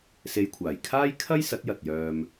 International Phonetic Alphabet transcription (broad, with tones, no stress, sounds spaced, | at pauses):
s e˧ j kʷʰ aː˨˩ j kʰ aː˥ j kʰ ɐ˥ j s ɐ˨˥ t̚ j ɐ˨ t̚ j œː˧ m